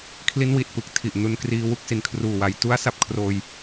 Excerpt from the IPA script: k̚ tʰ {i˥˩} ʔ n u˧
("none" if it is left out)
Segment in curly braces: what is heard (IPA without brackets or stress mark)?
i˨˩